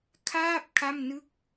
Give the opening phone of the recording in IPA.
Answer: kʰ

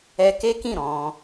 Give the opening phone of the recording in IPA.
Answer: ɛ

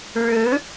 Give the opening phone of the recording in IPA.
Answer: ɻ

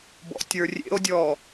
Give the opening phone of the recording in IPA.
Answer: b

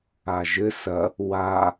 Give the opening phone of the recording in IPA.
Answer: a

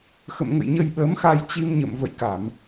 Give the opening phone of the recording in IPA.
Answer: x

